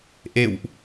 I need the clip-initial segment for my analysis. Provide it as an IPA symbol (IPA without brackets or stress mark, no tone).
ʔ